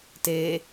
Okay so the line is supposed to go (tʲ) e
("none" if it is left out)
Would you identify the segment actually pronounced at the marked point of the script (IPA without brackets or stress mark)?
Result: t